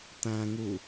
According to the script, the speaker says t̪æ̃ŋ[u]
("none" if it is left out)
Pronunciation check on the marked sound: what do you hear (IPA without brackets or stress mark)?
u